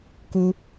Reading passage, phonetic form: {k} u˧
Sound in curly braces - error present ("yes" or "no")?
no